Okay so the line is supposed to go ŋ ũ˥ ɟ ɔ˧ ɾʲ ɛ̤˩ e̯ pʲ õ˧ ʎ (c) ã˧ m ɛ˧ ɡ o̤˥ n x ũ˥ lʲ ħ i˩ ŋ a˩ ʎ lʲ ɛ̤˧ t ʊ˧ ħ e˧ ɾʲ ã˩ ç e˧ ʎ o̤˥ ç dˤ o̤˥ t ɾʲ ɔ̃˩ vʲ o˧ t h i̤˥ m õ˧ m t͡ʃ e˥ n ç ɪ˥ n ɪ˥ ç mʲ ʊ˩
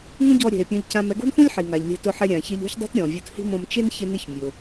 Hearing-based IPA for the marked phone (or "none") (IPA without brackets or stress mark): c